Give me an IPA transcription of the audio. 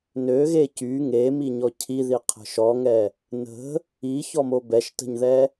n ø ɣ e c y ŋ e m i ɲ ɔ cʰ i ð i qʰ ə̤ ʃ ɔ ŋ ɛ | n ə̤ | i ç ɔ m o b ɛ ʃ t ə̤ ɲ ð ɛ

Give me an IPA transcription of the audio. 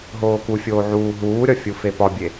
ɦ oː k u fʲ oː ʕ uː ɦ uː ɾʲ ɒ fʲ u f e p ɒ bʲ e

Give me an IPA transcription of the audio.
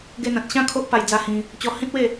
ɡ e˧ n̪ ã˨ t̚ ɕ ã˥˧ kʰ o˦ ʔ p a˧ j d͡z a˧ h ĩ˧ | t͡ɕ ɔ˧ h ĩ˦ t̚ w e˥˧

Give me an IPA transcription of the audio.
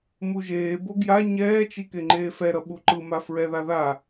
m u ʒ eː b o ɡ j a ɲ ɛː t͡ʃ i k e ŋ͡ǃ eː f ɛ ɾ ʌ ɓ u ǃ ɯ m a f ɹ ɛ ð a ð a

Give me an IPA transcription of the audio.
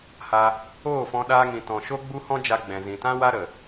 h a˧ | oː˦˨ f ɔ̃˧ ɗ aː˧ ŋ ĩ˨ t ɔ̃˨ ʃ o˦ ɡ͡b u˦ h ɔ̃˦ d͡ʒ a˧ ɡ͡b ɛ̃˨ z ĩ˨ t ã˦ w a˦ ɾ ə˨

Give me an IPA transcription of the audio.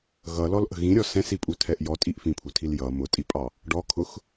ɣ ʌ l ɔ l ʔ ə̤ ɣ ĩ ɾʲ ɔ s ɛ̃ s i pʼ u tʰ ɛ ʔ j ɔ tʼ i ʔ f ĩ pʰ u tʰ i l j ʌ m ʊ tʼ i pʼ ɑ | ɖ ɔ kʰ ʊ x

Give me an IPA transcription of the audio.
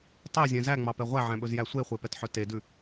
tˤ e zʲ ɛ̃ z æ ŋ͡m ɑ p ɛ ʁʷ æ ʕ æ̃ ɓ ɵ z j æ sʷ e χʷ e p ɛ t ħ œ t e d ʉ

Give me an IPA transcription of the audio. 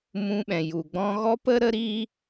m ũ˧ ɓ ɛ̃˨ j u˨ ɡ͡b ɔ̃˧ ɣ ɔ˦ p ə˦ ɾ ə˦ ɾ iː˦

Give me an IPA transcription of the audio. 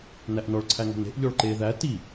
n æ ʔ n ɔ ɭ ǀʰ æ ŋ ɔ̤ n e̤ ʔ ʎ ɔ ɭ ǃ e ð æ t i

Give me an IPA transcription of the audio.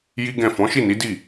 j i˦ ɡ ɛ̃˦˨ f ɔ̃˨˦ ʃ i˦˨ n i˨˦ d i˦˨

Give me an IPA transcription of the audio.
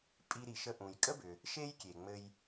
pʼ i˧ ɾ i˩ ʃ ə˧ ʔ ũ˩ j kʼ ə˥ b ʏ˩ | ʃ e˥ j kʲ e˩ ŋ͡m ɘ˧ j

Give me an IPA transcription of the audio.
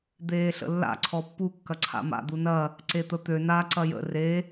d̪ eː ɬ ə̰ lː a̰ ǀʰ ɔ pː u kː ɐ ǀʰ a̰ m a̰ d̪ u n ɐ | ǀ e t̪ ə t̪ ø n a ǀ ɐ j ə̰ r e

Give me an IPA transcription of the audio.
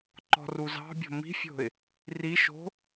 ǃ ɔ̤ r u z ɑ̤ bʲ o̤ m i̤ fʲ o̤ ɪ̯ | r i ʃ o̤

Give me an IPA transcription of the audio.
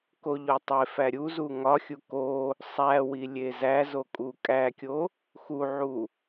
k o ʎ o tˤ e f æ ɾʲ u z u ŋ ɒ xʲ u k o | sˤ æ w i lʲ e z æ z o kʼ u kʼ æ kʲ o | x u ʕ u

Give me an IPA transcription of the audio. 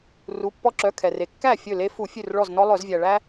r u˩˧˩ pː ɔ˦ ǁ œ˩˧˩ kʰ ɛ˩ r e˩ kː æ˥˩ fʲ ɵ˥˩ l e˦ f u˧˩˧ fʲ ʉ˧˩ r ɭ ɔ˧˩ z n ɔ˦ lˠ œ˧˩˧ z vʲ æ˩ ɭ æ˦

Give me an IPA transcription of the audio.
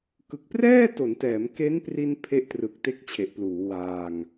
k ɯ˨˩ k̚ p r ɛː˥˩ t o˩˦ n t ɛː˩˦ m k e˦˥ n p r i˧ n pʰ e˦˥ ʔ t r ɯ˨˩ k̚ t e˦˥ k̚ t͡ɕʰ e˨˩ ʔ p l uː˩˦ w aː˧ ŋ

